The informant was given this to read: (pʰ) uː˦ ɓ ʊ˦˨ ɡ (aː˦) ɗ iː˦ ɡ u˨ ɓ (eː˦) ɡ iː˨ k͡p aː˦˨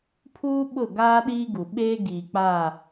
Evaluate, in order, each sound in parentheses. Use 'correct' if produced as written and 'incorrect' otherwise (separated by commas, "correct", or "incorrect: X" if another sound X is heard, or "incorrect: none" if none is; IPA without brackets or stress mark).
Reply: correct, correct, correct